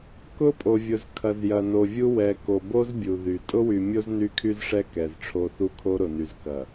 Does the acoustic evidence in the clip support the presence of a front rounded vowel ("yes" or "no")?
yes